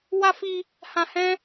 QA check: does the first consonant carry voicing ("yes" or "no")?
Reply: yes